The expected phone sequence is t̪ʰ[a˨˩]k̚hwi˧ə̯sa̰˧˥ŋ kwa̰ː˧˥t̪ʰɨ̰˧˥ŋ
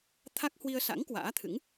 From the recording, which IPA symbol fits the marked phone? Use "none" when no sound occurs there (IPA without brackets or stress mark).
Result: a˦˥